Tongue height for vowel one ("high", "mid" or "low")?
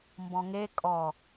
mid